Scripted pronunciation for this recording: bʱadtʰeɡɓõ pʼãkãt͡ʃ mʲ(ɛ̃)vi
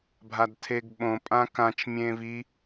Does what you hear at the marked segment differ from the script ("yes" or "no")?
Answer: yes